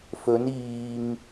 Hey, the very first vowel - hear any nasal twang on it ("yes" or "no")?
no